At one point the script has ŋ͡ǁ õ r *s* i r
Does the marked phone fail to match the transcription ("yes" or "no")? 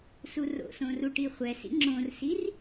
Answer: no